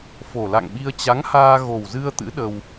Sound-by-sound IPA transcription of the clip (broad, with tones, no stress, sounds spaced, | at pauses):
f o˨˩ l a̰˧˨ ŋ ɓ i˧ ə̯ t͡ɕ a˨˦ ŋ h aː˧ ɣ o˨˩ w z ɨ˧ ə̯ t̪ ɨ̰˧˥ ɗ ə˧ w